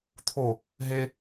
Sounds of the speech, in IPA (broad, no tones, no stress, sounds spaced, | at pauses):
t̪ʰ o | ɦ e